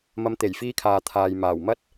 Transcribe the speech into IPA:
m ɐ˨˧ m t̪ e˨˩ j f iː˧ kʰ aː˨ t̪ʰ aː˨ j m aː˨˩ w m ɐ˥ t̚

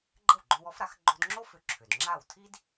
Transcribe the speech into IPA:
ɡ͡ǃ ə˥˩ w ɡ͡ǃ õ˧ w ɔ˩˥ f ɾ a˩˥ x ɡ͡ǃ o˧ d ŋ͡ǁ o˥ f ʏ˧ ǁʰ ʏ˩ d ŋ͡ǁ a˥˩ w tʰ i˥ d

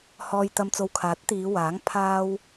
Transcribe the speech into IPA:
h ɔː˨ j t̪ ɐ˨ m t͡s o˨ w kʰ aː˨˥ t̚ t̪ iː˨˧ w aː˨˥ ŋ pʰ aː˧ w

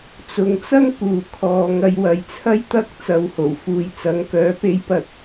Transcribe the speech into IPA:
t͡s ʊ˨˧ ŋ t͡s ɐ˥ ŋ p uː˨ kʰ ɔː˨ ŋ ɐ˧ j w ɐ˨ j t͡sʰ ɐ˥ j t̪ ɐ˥ k̚ t͡s ɐ˧ w h o˨˩ w f uː˧ j t͡s ɐ˨˧ ŋ k œː˨˥ p e˧ j p ɐ˧ t̚

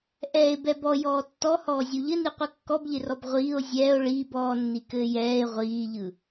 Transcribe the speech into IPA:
ʔ ɛː e̯ b ɛ b ɔ j ɔː tː ɔ h ɔː zʲ u ʎ ɘ n i qʷ ɯ kː ɔ b ʎ ɪ r ɔ b ʁʷ iː o̯ zʲ ɛː o̯ ɭ iː b ɔː nː i k ɘː j ɛː e̯ ʁʷ iː ʎ ɯ

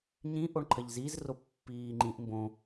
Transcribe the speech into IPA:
ɲ ĩ ʔ o ɳ ǃʰ ɐ ʎ z i z r o pː iː ŋ͡ǃ ĩ ʔ m b õ

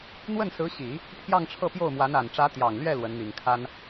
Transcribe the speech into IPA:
n̪ w ə˥˩ n s ɹ̩˧˥ ɕ i˨˩˦ | pʰ j ɑ˥˧ ŋ ʈ͡ʂʰ ɤ˥˧ p j o˥˩ ʊ̯ m w a˧˥ n a˨˩ n ʈ͡ʂ ä˧˥ t̪ j ɑ˨˩ ŋ l ɥ ɛ˥˩ l w ə˧˥ n n̪ i˨˩ ŋ kʰ a˥ n

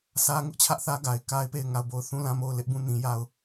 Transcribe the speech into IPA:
s ä˦ ŋ ʊ˦ ʔ t͡ɕʰ ä˦ ʔ θ ä˦ ɡ a˨ ɪ̯ k a˦ ɪ̯ p e˦˨ ɪ̯ ŋ a˦˨ ʊ̯ b o˦˨ ʊ̯ θ ũ˦˨ l ã˦˨ m o˦˨ ʊ̯ l ɪ˦ ʔ b ũ˦˨ n ĩ˦ j a˦ ʊ̯

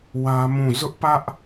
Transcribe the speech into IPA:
w ä˦ m ũ˦˨ z ʊ˦ ʔ p ä˦ ʔ

